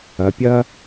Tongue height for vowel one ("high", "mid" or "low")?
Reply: low